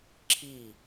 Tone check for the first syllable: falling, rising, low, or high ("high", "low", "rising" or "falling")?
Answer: falling